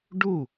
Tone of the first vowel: falling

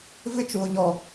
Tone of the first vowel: high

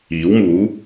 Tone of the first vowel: rising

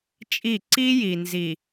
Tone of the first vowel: falling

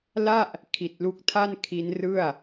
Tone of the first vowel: falling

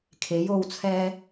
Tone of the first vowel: rising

